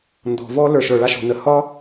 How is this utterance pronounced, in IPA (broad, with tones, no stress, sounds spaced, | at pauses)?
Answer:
n d ɔ̤˩ v ɔ˥ l ə˞˩ ʃ ə˞˩ ɭ a˥ ʃ ɔ̤˩ n ə˩ h ɒ˥